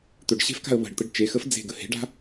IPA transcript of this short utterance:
t̪ɵɖɕe̤fka̤ə̯ βə̤ɖt̪əɖ t͡ʃexəf d͡ze̤ɡə he̤ɖa̤

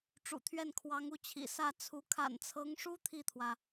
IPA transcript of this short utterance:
ʈ͡ʂṵ˨˩t̪ʰɥɛ˥˩n kʰwɑ˧˥ŋu˥˩t͡ɕʰḭ˨˩ sä˥˩t͡sʰu˧˥ kʰa̰˨˩nt͡sʰɤ˧˥ŋʂu˥ t̪ʰi˥˩t̪ʰwä˩

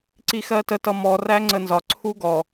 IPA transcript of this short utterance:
ǀixɜtə tʌmɔ ræŋ͡ǀənzɒ ǀʰuɡɔ

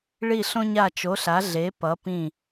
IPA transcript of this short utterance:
ɭi˧˩ɬõ˧ɲa˧˩ t͡ʃo˩˧ɬa˩˧ɮe˩˧ pʌ˩˧pĩ˧˩

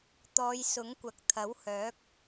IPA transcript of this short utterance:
t̪ɔː˨˧jsʊ˨˥ŋkʷɐ˨k̚ t̪ʰɐ˨˥whœː˨˥k̚

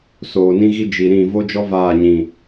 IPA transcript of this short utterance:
soː˨nĩ˦ɣi˦ d͡ʒi˨ɾĩ˦˨ vo˦d͡ʒɔ˦ vaː˦˨ɲĩ˨

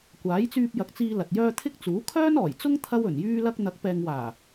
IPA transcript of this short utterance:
kʷaː˨˥jt͡syː˧p̚jɐ˨˥k̚t͡siː˧ lɐ˨t̚jœː˥ t̪ʰɪ˥k̚t͡suː˨˥ kʰœː˥nɔː˨˩jt͡sʊ˥ŋ t̪ʰɐ˥wɵ˨˩njyː˥lɐ˥k̚ n̪ɐ˨˥k̚pɛː˨ŋwaː˨˩

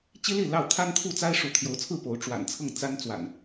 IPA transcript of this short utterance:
t͡ɕi˦ li˥˨lɑ˥˨ʊ̯ t̪ʰa˦nt̪ʰu˥˨t͡sa˦ɪ̯ ʂu˨˦t̪ʰjo˨˦ʊ̯t͡sʰɹ̩˥˨ po˨˦ʊ̯ ʈ͡ʂwa̰˨˩nt͡sʰɤ˥˨ŋ t͡sa˦nt͡swa̰˨˩n

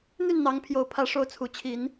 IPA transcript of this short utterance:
n̪y˥˨nn̪ɑ˨˦ŋ pʰjo˨˩ʊ̯ pʰä˨˦ʂo˨˦ʊ̯ t͡sʰu˨˩t͡ɕʰi˨˦n

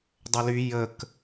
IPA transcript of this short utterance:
dˤøly jək

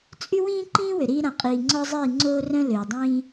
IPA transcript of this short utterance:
t͡sʼy˦wĩː˦ ǃĩː˦wø˨ɾiː˧ ɾã˨qʼiː˨ ŋ͡ǀɔ˦zˤiː˦˨ŋ͡ǀoː˦rœ̃˦ løː˨dˤĩː˦

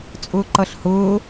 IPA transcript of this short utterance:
t͡sʼʊːǃʌɬhʊː

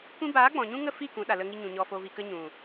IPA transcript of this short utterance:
kʷĩ˧baː˨˦ ɡ͡bɔ̃˨ɲũ˦ ŋə˦˨fi˦˨ kũ˨˦ɗa˨ lə˧ŋi˧ɲũ˨ ɲɔ˨fo˨vi˨kə˧ ɲũ˨

